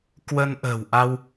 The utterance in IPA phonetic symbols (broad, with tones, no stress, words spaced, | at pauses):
kwə˧nʔə̤ː˨˩wʔa˧w